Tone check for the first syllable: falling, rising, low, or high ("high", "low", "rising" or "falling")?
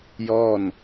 falling